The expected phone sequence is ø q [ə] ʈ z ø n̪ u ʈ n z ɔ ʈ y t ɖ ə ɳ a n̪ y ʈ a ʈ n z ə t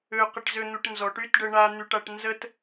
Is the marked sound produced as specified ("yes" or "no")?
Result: yes